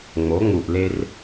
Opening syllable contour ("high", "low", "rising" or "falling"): rising